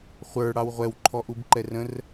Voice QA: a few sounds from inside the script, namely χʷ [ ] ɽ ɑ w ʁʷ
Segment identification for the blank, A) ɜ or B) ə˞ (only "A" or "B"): B